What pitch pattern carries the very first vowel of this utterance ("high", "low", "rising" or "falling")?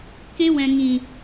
high